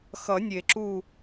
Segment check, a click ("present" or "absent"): present